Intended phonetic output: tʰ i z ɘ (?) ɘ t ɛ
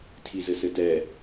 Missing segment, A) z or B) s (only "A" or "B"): B